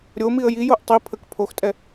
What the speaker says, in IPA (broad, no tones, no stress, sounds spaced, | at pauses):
ɾʲ o m i ə̯ j i j o ʔ tˤ i pʰ ə k pʰ o x tʼ ɛ